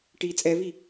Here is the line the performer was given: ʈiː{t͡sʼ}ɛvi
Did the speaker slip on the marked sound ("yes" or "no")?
no